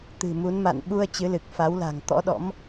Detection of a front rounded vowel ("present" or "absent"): absent